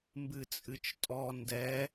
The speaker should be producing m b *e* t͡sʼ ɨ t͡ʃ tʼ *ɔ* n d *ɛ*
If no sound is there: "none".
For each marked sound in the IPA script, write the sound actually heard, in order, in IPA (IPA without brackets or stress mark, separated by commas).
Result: ɨ, ɔ, ɛ